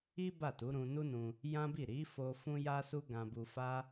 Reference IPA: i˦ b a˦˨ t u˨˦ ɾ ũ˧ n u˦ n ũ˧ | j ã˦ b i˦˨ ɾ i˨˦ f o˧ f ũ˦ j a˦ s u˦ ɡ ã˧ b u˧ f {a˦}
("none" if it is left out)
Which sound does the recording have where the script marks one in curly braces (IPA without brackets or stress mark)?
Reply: a˦